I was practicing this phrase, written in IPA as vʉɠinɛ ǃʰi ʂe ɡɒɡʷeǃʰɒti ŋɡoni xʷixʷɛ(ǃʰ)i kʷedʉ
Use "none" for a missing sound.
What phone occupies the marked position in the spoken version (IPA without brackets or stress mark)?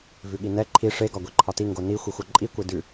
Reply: ǃʼ